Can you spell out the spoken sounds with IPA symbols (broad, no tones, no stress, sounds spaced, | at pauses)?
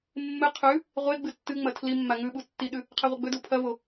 mː ɨ qʰ ʉ | ʁʷ e ɡ͡b ɨ tː ɨ ŋ͡m ɐ tʰ l i mː a ŋ ʉ ɓ u tː i ɗ ʉ | qʰ e ʁʷ ɐ ɡ͡b ɵ d u pʰ ɐ v o